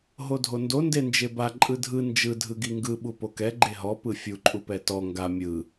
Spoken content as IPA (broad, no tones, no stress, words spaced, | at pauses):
ɦodʱondo ndend͡ʒeba ǃʼɯdʱɯ nd͡ʒɯ dʱɯɡiŋɡɯ ɓupokɛ ɡ͡ǃeɦɔ pɯfʲu ǃʼupɛtɔ ŋɡa mʲɯ